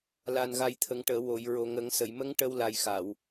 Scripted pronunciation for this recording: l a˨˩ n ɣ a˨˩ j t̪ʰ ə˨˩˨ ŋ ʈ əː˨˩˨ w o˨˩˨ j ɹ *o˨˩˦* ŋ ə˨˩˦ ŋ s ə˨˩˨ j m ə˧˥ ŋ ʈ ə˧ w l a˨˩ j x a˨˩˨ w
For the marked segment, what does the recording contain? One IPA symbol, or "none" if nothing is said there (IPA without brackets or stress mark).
o˨˩